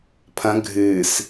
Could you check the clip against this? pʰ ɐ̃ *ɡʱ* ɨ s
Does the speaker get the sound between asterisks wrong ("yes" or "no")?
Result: no